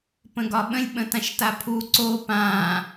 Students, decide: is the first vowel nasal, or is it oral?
nasal